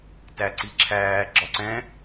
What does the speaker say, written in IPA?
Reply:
t æ ǀ i ǁʰ æː ɡ͡ǁ ɒ ǀ ɛ̃

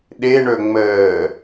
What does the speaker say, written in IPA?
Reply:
ɗ e ɳ ɵ ŋ͡m əː

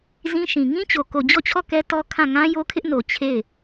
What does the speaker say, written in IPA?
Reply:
z ĩ˦ ʃ ĩ˨ ŋ ĩ˦ t͡ɕ o˨ k o˨ d͡ʑ ɔ˦˨ t͡ɕʰ ɔ˦˨ k ɛ˦ t ɔ˦ kʰ ã˦˨ ŋ ã˦ j o˦ kʰ ɪ˦ ʔ n o˨ t͡ɕʰ e˦˨ ɪ̯

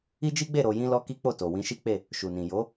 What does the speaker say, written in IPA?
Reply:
i˦ d͡ʒ i˦ ɡ͡b e˦˨ ɾ o˧ j ĩ˦ l ɔ˦ k i˦ k͡p o˦˨ t o˨ w ĩ˧ ʃ i˦ k͡p e˦˨ | ʃ u˨ n ĩ˨ j o˨˦

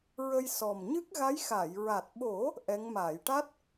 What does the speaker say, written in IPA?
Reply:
ɹ ə˧ j s ɔ˨˩ m ɲ ɨ˦˥ k̚ ɣ a˧˥ j x a˨˩˨ j ɹ a˨˩ t̚ ɓ o˨˩˦ | ʔ ɛ˧˥ ŋ m aː˨˩˨ j ʈ a˦˥ t̚

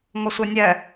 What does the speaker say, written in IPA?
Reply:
ŋ ɔ sʷ e nʲ ɛ

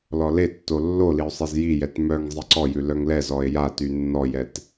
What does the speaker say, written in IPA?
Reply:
l ɔ l e tː o lː o l i o̯ sˤ e z j i j ɛ t m œ ŋ zˤ i ǀ ɔ j ʉ l œ ŋ l ɛ z ɔ e̯ j a t y nː ɔ j ɛ t

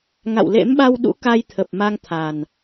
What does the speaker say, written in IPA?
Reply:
ŋ a̰˧˨ w l ḛ˧˥ m ɓ a˧ w ɗ ṵ˧˥ k a˧ j t̪ʰ ə˨˩ p̚ m a˧ ŋ t̪ʰ a˨˩ n

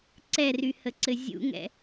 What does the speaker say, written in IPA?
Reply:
ǀ ɛ r y h ə ǀ ɘ zʲ ṵ ŋ ɛ̰

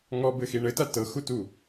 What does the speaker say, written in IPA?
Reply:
ŋ ɔ b ɘ x i ɳ ɘ t a t ɤ x u t u

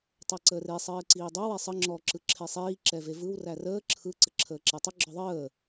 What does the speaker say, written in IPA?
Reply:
tˤ ɛ ǀ əː r e sˤ ɘː ǀ iː dˤ œ w ɛ sˤ ə ŋ͡ǁ ɔ ǁ ɯ ǁʰ e sˤ iː ǁ ɛ v e v ɯ w r æ r əː ǁʰ ɯ ǀ ə ǁʰ əː ǁ ɛ tˤ ə ɡ͡ǁ ɔ ðˤ əː

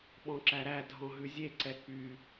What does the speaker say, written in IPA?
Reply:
ɓ ɔ̃ ǁ æ ɾ æ dʱ ɔ̃ ɦ ʉ zʲ e ǀ ɛ k͡p y

